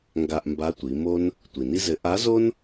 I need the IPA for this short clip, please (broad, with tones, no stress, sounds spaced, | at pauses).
ŋ ɡ a˧ ʔ m b a˧˥ tʷ i˩˧ m o˥ n | tʷ i˩ n i˥ z ɘ˧˥ ʔ a˧˥ z o˥ n